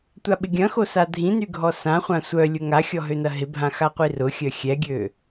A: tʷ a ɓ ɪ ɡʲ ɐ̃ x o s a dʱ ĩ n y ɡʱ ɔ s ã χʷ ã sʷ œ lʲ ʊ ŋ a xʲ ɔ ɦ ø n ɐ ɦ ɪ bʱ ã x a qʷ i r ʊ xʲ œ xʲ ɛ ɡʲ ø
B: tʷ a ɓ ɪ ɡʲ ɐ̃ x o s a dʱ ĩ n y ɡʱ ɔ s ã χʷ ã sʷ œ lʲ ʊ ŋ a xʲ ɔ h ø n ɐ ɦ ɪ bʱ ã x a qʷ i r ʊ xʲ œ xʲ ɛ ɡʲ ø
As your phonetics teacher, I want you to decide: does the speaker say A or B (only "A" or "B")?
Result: A